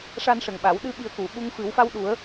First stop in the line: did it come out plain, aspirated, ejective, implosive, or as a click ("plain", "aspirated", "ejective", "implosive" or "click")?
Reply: implosive